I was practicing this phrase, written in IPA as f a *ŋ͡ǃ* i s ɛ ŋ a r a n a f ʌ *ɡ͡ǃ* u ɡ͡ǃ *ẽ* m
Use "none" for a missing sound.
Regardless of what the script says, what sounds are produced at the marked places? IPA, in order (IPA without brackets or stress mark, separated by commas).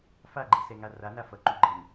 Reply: ɡ͡ǃ, ǃ, e